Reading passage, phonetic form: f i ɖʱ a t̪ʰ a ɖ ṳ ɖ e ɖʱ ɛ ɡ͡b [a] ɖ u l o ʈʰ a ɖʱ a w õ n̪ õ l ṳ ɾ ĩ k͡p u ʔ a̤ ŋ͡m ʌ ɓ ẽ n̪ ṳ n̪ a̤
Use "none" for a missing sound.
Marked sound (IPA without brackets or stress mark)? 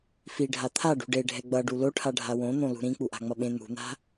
ʌ